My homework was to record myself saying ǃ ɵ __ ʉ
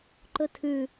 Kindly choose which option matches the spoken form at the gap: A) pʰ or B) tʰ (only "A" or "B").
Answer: B